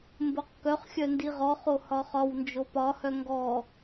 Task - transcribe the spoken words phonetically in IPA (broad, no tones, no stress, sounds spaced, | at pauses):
m b o q k œ χ xʲ œ n d i ʁ ɔ χ o h ɒ χ ɒ w n d͡ʒ o p ɒ h œ ŋ ɡ ɔ